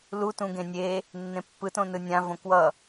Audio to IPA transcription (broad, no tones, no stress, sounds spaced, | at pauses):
l u t ũ ɡ ẽ nʲ e | nː ẽ pː ɯ t õ n ɯ nʲ ã v õ k w ʌ